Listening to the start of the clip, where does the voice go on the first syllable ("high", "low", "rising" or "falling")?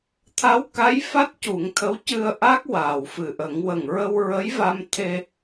rising